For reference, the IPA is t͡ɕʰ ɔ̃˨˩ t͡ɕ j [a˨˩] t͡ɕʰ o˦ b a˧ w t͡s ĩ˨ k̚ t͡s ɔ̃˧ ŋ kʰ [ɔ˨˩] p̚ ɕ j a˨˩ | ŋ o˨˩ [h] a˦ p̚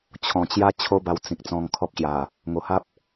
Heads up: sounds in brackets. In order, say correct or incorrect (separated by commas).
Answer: incorrect, incorrect, correct